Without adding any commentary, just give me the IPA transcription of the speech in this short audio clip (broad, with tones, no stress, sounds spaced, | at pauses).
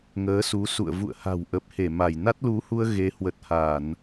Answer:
ŋ əː˨˦ s u˨˦ s ṵ˧˨ ə̯ v ṵ˧˨ ə̯ h a̤˨˩ w ʔ ə˨˩ p̚ h e˧˩ m a˧˩ j n a˦˥ t̚ l u˨˦ h u˧ ə̯ ɣ e˨˦ h w ə˨˩ t̚ h a˧˩˨ n